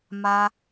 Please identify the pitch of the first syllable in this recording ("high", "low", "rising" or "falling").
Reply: low